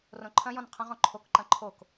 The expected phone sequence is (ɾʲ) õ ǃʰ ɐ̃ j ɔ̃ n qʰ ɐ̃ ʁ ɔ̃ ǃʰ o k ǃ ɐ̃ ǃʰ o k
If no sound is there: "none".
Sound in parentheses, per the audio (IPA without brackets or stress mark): r